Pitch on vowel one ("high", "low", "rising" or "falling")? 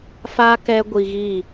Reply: high